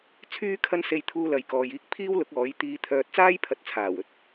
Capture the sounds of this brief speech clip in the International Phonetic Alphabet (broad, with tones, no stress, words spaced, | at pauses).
t͡sʰyː˥kʰɐ˥nse˧j t̪ʰuː˧lɐ˨jkɔː˨jiː˧k̚ pʰiː˥wlʊ˨˥k̚ɔː˨˥j t̪iː˧t̪ʰœː˧t̚ t͡saː˥jpʰɐ˨˥t̚t͡sʰaː˨˩w ɵ˧t̚